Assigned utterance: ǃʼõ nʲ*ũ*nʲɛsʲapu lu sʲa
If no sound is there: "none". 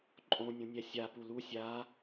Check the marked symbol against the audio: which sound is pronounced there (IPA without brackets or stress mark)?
õ